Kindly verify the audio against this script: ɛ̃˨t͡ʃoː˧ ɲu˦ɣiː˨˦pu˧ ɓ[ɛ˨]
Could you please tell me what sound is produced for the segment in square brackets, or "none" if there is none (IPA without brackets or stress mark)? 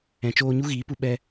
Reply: ɛ˧